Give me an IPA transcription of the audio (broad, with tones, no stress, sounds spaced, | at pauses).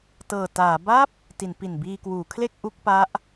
t ɤː˨˩ t aː˩˦ b a˥˩ p̚ | t i˩˦ n p i˨˩ n b iː˧ k w uː˩˦ kʰ l e˥˩ k̚ ʔ u˦˥ k̚ p a˦˥ ʔ